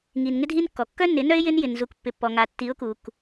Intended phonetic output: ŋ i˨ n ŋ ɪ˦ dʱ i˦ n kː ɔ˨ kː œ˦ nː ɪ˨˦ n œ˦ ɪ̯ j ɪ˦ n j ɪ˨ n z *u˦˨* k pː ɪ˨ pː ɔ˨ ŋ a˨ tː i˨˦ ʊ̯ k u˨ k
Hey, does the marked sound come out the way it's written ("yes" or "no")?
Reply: no